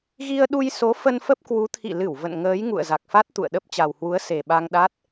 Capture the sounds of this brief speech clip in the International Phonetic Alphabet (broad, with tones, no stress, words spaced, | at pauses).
ɣi˧ə̯ɗu˧jso˨˦ fə˧nfə˦˥p̚kwu˨˦ t̪ʰḭ˧˨lɨ˧˩w və̰˧˨n ŋəː˨˦j ŋṵ˧˨ə̯za˨˩k̚fa˦˥t̚ t̪ṵ˧˨ə̯ ɗə˦˥p̚ t͡ɕa˨˩whwu˨˦ə̯ se˨˩ɓa˧ŋ ɗa˦˥t̚